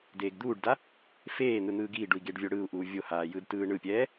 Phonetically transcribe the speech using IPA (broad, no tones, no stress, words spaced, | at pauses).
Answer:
deːɡd̪uːɖda | feː n̪ɯn̪ɯːɡiːɖui̯ ɡeɖvʲoɽɯːu̯ʔuː vʲohaː jɯdtɯːɳɯpʲɛː